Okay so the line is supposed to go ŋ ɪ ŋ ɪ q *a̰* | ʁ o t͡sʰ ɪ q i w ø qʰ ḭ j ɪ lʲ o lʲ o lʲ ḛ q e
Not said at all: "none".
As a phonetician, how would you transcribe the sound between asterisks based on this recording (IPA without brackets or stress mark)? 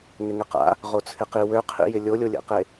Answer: a̰